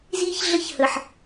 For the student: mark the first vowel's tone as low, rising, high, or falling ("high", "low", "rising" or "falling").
high